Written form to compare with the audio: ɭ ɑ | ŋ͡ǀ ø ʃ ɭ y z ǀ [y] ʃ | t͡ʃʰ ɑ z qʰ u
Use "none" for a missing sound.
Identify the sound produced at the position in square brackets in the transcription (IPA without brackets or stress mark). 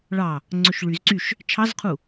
y